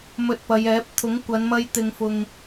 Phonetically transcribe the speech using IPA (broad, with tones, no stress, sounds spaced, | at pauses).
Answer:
m ɵ˧ t̚ p ɐ˨˧ j ɛː˨˥ p̚ t̪ʰ ʊ˨˥ ŋ kʷ ɐ˨˧ n m ɐ˧ j t̪ ɪ˨ ŋ f ʊ˨ ŋ